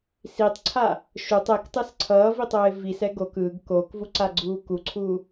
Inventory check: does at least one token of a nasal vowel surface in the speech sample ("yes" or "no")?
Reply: no